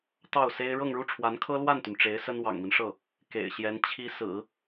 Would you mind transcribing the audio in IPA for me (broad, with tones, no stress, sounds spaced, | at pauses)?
t̪ ɑ˥˩ ʊ̯ s e˥ ɪ̯ ɻ ɤ˥˧ ŋ ɻ u˥˩ ʈ͡ʂʰ w a˧˥ n kʰ ɤ˥ l w a˥˩ n t̪ y˩ n ʈ͡ʂ e˧˥ ɪ̯ s ə˥ n w ɑ̰˨˩ ŋ m i˦ n ʂ ɤ˥˩ | k ḛ˨˩ ɪ̯ ɕ j ɛ˧˥ n t͡ɕʰ i˧˥ s ɹ̩˨˩˦